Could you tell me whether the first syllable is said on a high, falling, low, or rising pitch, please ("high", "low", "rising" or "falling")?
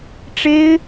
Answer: high